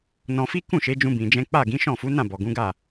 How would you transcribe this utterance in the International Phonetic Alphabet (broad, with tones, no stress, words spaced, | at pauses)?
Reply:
nɔ̃˧fi˦ kũ˦˨ʃe˨˦ d͡ʒũ˦bĩ˧d͡ʒɛ̃˦ k͡pa˦˨ɡĩ˨˦ ʃɔ̃˦˨fu˨˦nã˦˨ bɔ˨ɡũ˨˦ɡa˦˨